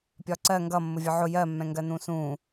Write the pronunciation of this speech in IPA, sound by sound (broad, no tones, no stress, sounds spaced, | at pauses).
pʲ ɒ ǀ ɜ ŋ ɡ ʌ mː ʊ vʲ ɒ ʕ ʊ j ɜ mː ɛ̃ ŋ ɡ ɜ n ũ s ũ